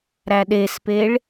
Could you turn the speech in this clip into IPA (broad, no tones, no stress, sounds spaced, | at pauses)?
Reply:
ɾ æ ɗ e s p e ɭ